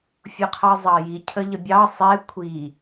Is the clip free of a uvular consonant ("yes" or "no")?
no